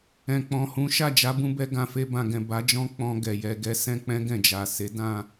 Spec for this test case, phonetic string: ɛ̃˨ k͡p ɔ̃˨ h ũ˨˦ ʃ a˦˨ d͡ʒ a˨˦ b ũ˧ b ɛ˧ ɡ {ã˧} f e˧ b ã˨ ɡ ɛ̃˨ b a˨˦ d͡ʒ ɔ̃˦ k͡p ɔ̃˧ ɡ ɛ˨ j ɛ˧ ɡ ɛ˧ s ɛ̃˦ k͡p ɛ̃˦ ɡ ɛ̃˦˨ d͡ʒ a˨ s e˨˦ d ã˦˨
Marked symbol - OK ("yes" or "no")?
yes